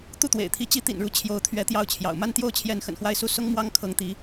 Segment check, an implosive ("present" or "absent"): absent